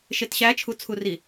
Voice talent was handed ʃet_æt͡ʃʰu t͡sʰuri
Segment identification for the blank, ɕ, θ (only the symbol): ɕ